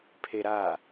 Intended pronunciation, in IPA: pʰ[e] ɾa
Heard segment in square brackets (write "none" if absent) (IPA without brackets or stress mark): e